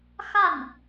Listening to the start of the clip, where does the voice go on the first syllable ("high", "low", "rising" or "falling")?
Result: falling